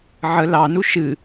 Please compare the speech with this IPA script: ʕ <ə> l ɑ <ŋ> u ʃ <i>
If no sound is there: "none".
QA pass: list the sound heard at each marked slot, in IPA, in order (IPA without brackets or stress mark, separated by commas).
ə, n, ɨ